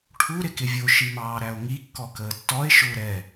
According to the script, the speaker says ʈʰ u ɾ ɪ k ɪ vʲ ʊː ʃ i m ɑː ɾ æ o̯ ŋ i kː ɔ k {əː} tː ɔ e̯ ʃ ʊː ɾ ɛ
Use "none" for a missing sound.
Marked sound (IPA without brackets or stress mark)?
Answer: əː